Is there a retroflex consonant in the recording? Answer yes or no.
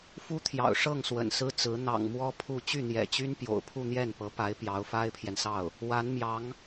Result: yes